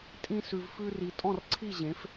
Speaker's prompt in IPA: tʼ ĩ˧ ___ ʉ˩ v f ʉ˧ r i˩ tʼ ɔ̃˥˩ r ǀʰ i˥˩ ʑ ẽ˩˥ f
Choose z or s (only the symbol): s